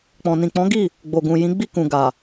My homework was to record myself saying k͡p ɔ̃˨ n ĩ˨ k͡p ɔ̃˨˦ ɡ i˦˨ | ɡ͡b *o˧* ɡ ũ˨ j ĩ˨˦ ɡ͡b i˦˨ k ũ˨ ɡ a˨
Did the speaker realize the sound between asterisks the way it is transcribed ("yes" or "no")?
no